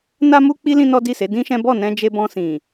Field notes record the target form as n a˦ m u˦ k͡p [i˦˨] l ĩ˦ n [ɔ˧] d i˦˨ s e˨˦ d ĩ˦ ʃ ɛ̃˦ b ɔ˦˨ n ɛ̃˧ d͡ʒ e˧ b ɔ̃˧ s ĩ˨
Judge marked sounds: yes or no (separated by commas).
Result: no, no